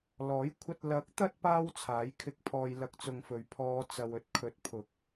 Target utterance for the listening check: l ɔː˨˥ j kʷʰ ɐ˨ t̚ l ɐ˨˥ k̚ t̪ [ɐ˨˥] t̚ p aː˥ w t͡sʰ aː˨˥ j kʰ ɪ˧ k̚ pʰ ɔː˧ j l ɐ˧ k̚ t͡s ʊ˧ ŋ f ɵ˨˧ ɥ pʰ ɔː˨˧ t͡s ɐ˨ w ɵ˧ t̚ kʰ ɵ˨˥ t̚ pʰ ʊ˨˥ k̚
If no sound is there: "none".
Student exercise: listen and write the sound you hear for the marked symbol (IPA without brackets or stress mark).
ɐ˧